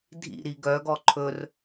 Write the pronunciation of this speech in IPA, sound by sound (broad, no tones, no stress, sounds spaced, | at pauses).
dʱ ḭ ɾ i ɡ œ ɡ ɔ ǃʰ ɵ r